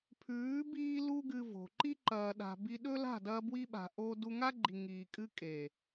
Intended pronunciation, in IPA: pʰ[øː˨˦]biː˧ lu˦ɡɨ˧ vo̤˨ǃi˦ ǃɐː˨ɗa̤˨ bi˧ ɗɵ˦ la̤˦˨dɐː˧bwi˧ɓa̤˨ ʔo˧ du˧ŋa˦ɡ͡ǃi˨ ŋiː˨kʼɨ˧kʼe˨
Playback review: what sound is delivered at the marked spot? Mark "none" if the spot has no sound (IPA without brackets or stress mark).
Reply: ʉː˨˦